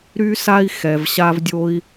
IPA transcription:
ɾ y˥ s a˥ i̯ x ɛ˧ v ɕ a˥ v dʲ o˥ i̯

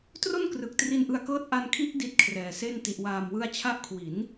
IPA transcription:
t r o˥˩ n k r ɯ˨˩ k̚ t r i˧ n ʔ ɯ˧ a̯ k ɤː˦˥ t̚ ʔ a˧ n kʰ i˦˥ ʔ d i˦˥ t̚ kʰ r ɛː˨˩ s e˥˩ n t i˨˩ ʔ w aː˨˩ m w ɯ˧ a̯ t͡ɕʰ a˦˥ ʔ kʰ w i˩˦ n

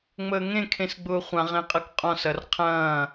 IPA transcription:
ŋ͡m əː ŋ ẽ kʰ ẽ s ɡ͡b ʊː χʷ ã ʁ ẽ qʼ ɐ k qʼ ɔ̃ s ɐ r qʰ ɐ̃ː

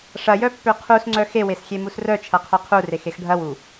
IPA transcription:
ʂ ɐ j œ pː ø qʰ u s ŋ͡ǀ œ x e w e s xʲ e m u s r œ t͡ʃʰ ɐ qʰ œ qʰ u r e x e x ɖʱ ɐ w u

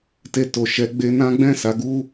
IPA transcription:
t e˧ t o˨ ʃ ɛ˨˦ ɡ͡b e˧ n ã˦ ɡ͡b ɛ̃˦˨ s a˨˦ ɡ u˦

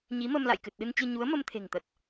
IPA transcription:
ɲ i˨˦ m ə˧ m l a̰˧˨ j k ɨ˨˩ t̚ ɗ ɨ˧ n t͡ɕ ɨ˧ ɲ u˨˦ ə̯ m ə˧ m t̪ʰ e̤˨˩ ŋ t̪ ə˨˩ t̚

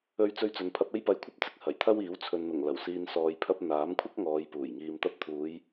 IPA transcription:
ɵ˧ ɥ t͡s ɵ˧ ɥ t͡s ɵ˨ n pʰ ɐ˧ p̚ e˥ j p ɐ˧ j kʷʰ ɐ˥ p̚ t͡s ɪ˨˥ k̚ h ɐ˨˩ j t̪ʰ ɐ˥ w iː˨˥ w t͡sʰ ɵ˨ n n̪ ʊ˨˩ ŋ l ɐ˨˩ w s iː˧ n s ɔː˨ j pʰ ɐ˧ p̚ n̪ aː˨˥ m kʷʰ ɐ˥ k̚ ŋ ɔː˨˧ j p uː˨˩ j ŋ iː˨ m t̪ ɐ˧ p̚ t̪ʰ uː˨˧ j

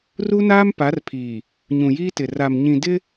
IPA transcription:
r u˦ n aː˦ m p a˨˦ r pʰ iː˨ | ɲ ũ˨ j iː˦ t ɪ˨ r a˨ m ɲ ĩ˨ d ɪ˦

